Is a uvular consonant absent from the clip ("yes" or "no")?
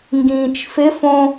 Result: yes